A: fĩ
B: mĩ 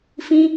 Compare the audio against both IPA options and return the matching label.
A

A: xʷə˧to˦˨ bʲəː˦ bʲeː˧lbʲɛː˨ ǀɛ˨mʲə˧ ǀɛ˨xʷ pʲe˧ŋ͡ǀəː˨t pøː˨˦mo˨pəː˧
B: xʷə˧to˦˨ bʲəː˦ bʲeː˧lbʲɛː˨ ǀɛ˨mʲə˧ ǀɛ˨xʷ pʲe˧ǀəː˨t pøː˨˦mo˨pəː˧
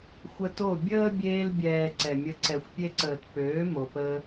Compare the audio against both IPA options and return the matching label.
B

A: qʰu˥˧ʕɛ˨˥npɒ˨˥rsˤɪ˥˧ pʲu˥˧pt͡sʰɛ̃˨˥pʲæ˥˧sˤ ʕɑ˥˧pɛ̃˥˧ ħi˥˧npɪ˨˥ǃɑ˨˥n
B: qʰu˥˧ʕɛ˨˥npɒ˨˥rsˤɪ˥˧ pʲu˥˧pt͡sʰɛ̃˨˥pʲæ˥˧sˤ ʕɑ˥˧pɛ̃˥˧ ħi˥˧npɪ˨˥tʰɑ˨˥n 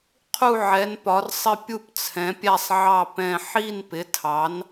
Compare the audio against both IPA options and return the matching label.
B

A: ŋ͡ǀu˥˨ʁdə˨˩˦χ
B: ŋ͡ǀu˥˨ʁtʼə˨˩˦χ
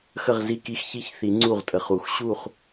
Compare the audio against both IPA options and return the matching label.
B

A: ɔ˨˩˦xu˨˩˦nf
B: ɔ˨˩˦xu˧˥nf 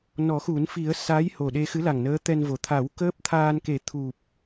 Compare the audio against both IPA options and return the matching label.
A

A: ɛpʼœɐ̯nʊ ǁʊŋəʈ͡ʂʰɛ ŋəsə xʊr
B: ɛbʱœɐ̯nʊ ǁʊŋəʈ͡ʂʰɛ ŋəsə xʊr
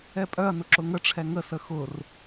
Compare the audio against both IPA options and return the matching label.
A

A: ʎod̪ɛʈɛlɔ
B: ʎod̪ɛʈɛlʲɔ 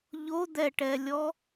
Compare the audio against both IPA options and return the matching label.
B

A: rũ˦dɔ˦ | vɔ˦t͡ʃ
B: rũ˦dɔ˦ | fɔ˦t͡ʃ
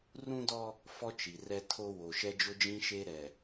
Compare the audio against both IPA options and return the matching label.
B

